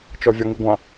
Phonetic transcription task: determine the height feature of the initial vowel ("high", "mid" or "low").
mid